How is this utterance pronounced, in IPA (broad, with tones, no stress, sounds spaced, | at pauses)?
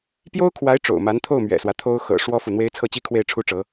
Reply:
p j o˥ ʊ̯ kʰ w a˧˥ ɪ̯ ʈ͡ʂ o̰˨˩ ʊ̯ m a˧˥ n t̪ʰ o˥˩ ʊ̯ m ɥ ɛ̰˨˩ s w ä˦ t̪ʰ o˥ ʊ̯ x ɤ̰˨˩ ʂ w ɔ˥ f u˨ n̪ w e˥ ɪ̯ t͡sʰ ɤ˥˩ t͡ɕ i˥ kʰ w e˥˩ ɪ̯ ʈ͡ʂʰ u˥ ʈ͡ʂ ɤ˧˥